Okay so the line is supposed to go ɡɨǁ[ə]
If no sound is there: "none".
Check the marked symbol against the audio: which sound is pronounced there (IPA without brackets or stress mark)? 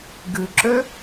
ø